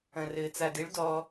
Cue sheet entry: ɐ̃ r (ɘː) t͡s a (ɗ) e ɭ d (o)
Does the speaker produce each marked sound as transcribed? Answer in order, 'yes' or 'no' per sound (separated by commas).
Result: yes, no, no